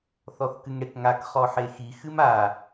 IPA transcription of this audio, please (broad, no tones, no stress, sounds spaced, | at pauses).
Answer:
θ ɔ θ k ɨ ŋ ɽ e k ŋ a k χ ɔ ħ e x i x ɨ m a